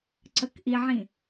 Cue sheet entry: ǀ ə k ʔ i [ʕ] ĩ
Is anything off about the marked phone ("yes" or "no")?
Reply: no